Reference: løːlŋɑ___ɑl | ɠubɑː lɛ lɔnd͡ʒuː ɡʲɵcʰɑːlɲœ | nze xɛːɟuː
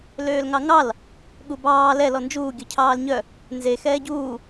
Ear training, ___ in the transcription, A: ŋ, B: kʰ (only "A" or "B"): A